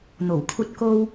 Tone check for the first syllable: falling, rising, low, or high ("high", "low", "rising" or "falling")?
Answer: low